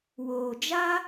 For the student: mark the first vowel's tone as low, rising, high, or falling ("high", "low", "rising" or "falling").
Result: low